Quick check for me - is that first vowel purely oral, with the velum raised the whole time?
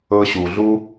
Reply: yes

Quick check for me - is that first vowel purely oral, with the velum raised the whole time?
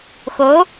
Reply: yes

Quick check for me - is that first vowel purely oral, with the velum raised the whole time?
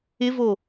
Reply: yes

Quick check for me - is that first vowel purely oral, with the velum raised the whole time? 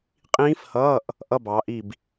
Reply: no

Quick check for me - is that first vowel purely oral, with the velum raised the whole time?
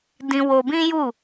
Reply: no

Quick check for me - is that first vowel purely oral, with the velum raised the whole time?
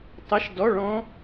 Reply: yes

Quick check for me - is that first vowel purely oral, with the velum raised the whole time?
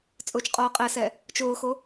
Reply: yes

